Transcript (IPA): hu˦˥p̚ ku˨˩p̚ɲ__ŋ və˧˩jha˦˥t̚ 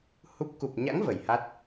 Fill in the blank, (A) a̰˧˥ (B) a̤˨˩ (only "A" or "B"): A